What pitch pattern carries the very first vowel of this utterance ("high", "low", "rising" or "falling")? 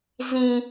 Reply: high